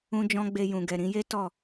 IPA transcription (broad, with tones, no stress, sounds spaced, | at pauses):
ũ˦ d͡ʒ ɔ̃˦ ɡ͡b e˧ j ũ˨ ɡ ɛ˨ ɾ ĩ˨˦ j e˦ t ɔ˦˨